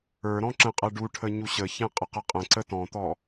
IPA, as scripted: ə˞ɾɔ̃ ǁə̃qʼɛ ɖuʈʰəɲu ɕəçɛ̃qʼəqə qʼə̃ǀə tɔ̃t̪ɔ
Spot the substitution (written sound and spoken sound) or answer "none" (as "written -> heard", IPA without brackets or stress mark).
none